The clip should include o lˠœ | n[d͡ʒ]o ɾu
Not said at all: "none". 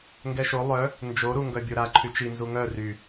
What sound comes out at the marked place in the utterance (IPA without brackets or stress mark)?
d͡ʒ